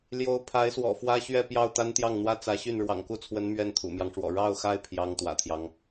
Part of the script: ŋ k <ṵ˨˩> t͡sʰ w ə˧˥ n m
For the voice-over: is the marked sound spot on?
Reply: no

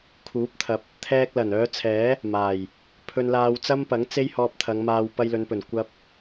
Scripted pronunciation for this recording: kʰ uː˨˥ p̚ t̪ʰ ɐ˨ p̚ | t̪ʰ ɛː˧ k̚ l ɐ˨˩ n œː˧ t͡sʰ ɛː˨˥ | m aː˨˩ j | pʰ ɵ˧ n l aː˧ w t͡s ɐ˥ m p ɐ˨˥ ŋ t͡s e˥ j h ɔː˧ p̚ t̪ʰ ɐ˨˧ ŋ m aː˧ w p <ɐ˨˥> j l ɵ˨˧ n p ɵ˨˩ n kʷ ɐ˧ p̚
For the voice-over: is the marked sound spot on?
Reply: no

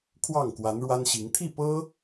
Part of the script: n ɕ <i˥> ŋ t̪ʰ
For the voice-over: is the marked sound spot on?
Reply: no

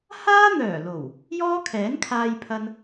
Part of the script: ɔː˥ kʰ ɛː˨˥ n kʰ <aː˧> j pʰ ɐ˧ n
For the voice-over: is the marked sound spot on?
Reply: yes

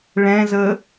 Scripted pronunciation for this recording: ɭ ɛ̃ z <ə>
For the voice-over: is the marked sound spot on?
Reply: yes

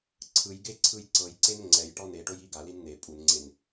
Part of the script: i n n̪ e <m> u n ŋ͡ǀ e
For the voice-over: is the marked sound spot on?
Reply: no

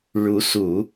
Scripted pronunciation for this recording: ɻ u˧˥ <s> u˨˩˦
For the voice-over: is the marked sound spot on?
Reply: yes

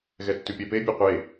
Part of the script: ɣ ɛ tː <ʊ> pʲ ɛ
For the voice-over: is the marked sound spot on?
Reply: no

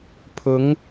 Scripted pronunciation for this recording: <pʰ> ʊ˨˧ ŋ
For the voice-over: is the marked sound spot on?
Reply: yes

